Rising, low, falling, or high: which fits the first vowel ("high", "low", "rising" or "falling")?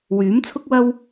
rising